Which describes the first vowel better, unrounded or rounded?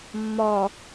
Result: rounded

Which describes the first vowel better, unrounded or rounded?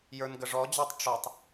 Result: unrounded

